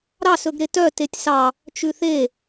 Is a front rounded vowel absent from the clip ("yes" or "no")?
no